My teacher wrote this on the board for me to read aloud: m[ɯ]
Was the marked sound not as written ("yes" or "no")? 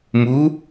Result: yes